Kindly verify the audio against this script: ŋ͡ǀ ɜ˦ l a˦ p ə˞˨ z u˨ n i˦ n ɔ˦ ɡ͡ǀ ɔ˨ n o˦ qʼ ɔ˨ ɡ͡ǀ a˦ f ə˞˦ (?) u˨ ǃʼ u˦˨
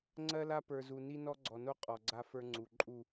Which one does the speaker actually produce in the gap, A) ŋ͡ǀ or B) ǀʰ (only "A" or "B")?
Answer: A